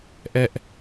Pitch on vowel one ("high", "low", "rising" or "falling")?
high